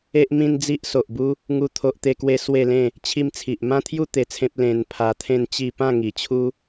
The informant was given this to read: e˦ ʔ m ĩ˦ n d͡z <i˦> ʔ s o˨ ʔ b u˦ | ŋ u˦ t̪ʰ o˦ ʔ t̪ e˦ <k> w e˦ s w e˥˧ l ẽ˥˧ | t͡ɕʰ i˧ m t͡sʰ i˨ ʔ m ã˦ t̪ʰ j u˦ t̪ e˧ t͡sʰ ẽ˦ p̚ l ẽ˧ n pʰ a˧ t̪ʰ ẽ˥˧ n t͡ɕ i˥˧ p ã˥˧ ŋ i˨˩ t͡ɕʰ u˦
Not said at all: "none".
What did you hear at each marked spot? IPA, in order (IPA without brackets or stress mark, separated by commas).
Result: i˦, k